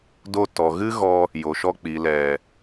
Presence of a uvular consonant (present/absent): absent